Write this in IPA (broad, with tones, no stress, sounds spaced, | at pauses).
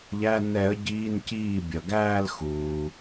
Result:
ʎ æ˧˥˧ n ɛ˨˩˦ ə̯ ɟ iː˧˥˧ n c iː˥˩ bʲ ʌ˩ ɡ æː˥˧ l x uː˩